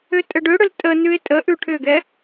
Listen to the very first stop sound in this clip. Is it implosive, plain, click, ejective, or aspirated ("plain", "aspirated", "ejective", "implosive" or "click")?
ejective